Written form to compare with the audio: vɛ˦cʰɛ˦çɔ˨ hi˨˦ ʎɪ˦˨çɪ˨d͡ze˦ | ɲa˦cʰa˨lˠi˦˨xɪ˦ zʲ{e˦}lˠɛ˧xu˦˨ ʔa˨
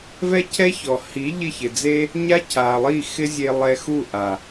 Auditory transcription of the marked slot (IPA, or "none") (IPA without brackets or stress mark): e˧